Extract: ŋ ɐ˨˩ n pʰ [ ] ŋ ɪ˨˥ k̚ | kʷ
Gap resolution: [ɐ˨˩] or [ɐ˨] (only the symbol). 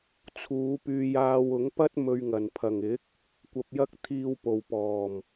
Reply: ɐ˨˩